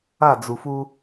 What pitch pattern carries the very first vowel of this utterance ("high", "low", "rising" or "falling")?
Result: falling